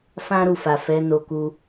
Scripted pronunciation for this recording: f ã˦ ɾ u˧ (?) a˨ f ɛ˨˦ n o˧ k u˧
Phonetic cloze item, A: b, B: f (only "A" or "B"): B